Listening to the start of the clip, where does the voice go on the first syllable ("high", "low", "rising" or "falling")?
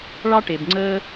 high